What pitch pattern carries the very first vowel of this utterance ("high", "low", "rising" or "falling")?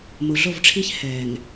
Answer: low